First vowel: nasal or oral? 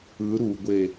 oral